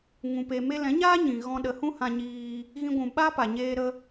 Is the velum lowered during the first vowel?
yes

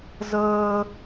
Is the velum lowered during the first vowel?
no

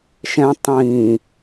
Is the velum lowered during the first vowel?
yes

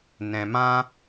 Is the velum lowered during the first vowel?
yes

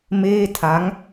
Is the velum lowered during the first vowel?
no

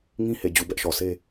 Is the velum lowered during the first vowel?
yes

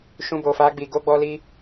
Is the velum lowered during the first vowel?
yes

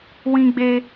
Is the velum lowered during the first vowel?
yes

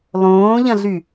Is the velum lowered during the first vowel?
yes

